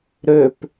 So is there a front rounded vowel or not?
yes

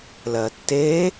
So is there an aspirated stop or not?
no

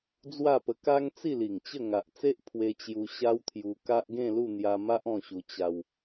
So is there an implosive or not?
no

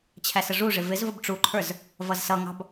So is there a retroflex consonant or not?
yes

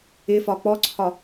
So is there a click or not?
yes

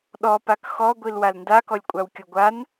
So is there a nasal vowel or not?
no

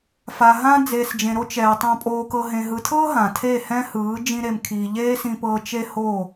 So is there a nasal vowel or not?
yes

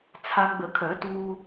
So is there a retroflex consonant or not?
no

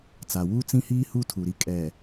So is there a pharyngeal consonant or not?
no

